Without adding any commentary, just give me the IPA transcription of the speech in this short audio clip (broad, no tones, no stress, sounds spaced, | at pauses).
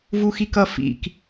v u x i k ʌ f ḭ k